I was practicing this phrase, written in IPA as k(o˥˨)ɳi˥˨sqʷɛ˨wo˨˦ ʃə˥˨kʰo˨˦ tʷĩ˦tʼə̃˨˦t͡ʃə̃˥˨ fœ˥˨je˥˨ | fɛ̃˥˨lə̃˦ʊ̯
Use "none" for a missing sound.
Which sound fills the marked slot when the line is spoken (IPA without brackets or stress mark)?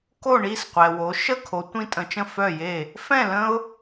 o˥˨